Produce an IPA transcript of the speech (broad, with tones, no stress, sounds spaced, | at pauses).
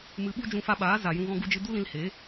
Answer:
m ɨ˧ ɓ u˦ d͡ʒ ũ˧ f a˧ ɓ aː˨˦ z a˨ j ũ˧ ɣ ɔ̃˧ ɡ u˧ d͡ʒ ɨ˧ d u˦ l ĩ˧ l h eː˨˦